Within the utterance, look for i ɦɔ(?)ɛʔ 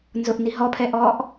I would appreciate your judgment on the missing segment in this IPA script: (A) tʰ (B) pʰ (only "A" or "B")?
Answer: B